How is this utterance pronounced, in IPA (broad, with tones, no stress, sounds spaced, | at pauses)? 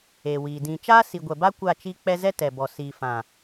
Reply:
eː˨ w iː˨ d ĩ˨ t͡ʃ aː˦ s i˨ ɡʷ ɛ˨ b a˦ kʷ a˦˨ t͡ʃ i˦ k͡p ɛ˦ z ɛ˦ t ɛ˨ b ɔ˨ s iː˨ f ã˨